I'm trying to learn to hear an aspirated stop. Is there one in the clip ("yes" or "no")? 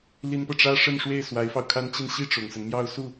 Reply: yes